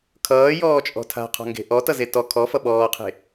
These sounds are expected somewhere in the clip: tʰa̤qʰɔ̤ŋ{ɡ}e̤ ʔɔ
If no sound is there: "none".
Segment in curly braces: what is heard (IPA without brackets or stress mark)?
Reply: ɡ